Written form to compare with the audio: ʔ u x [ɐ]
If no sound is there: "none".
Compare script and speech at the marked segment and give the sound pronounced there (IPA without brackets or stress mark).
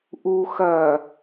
ɐ